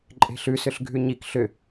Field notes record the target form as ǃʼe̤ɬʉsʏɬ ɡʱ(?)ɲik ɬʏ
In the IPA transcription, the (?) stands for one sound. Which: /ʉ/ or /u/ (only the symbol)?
ʉ